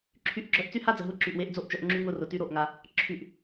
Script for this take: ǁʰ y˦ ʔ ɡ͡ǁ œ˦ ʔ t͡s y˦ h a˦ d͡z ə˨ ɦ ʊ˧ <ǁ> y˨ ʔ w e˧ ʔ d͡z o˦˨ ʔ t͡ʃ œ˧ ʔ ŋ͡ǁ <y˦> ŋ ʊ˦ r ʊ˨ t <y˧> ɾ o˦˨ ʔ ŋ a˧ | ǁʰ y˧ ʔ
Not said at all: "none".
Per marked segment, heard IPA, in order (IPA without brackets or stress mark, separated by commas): ǁ, y˦, y˦